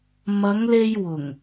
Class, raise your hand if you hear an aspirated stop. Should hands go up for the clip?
no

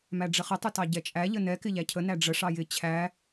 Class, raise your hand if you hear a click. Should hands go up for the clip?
no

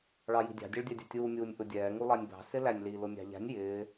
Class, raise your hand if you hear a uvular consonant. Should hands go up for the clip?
no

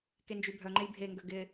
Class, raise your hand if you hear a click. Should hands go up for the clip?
yes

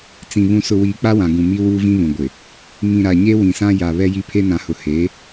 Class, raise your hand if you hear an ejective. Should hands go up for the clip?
no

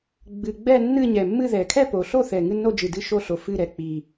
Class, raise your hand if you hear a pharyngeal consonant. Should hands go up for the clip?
no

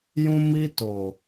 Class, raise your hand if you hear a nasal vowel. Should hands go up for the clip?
yes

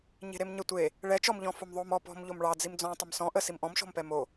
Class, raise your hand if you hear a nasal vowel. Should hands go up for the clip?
yes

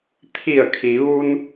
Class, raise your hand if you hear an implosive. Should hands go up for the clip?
no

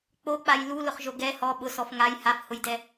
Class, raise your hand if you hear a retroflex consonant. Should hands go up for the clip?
no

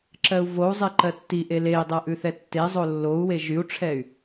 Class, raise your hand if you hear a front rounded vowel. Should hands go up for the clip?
yes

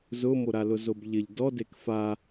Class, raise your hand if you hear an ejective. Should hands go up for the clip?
no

